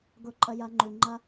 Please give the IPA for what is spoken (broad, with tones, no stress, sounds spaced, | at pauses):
ɡ ʊ˧ ǃʼ ə˧ j ɐ˧ ŋ͡ǃ ʉ˨ ŋ͡ǃ ɐ˦